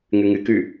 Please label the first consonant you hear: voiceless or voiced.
voiced